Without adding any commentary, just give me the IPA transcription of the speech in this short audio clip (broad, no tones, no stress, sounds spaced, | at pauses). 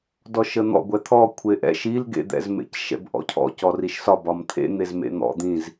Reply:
d ɔ ʃ ə n̪ ɔ̰ ɡʷ ɛ t̪ʰ ɔ kʷʰ e ʔ ɛ̰ ʃ i l ɡ ḛ d̪ ɛ̰ z m ḛ c ʃ ɛ̰ b ʔ ɔ̰ cʰ ɔ̰ c ɔ r i ʃ s ɒ b ɒ m t̪ʰ ḛ n̪ e z m ḛ n̪ ɔ̰ d̪ ĩ z